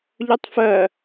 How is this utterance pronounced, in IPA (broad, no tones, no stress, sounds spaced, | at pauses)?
ʎ œ tˤ f ɜ